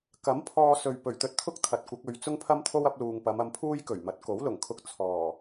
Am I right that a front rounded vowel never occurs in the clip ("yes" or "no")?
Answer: yes